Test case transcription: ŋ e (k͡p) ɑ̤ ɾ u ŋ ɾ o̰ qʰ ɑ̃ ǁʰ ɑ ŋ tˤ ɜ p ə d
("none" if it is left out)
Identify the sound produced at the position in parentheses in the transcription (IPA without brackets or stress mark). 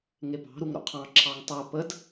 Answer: p